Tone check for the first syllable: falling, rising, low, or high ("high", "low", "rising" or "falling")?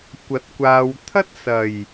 rising